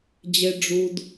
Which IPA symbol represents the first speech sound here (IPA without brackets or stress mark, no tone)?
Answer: d͡ʑ